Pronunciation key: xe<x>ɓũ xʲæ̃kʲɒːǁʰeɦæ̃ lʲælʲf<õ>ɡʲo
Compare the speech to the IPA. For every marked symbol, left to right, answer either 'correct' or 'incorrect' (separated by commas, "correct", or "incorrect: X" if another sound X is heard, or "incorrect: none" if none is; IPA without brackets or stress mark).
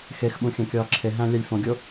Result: correct, correct